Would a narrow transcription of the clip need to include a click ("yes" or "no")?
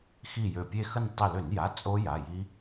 no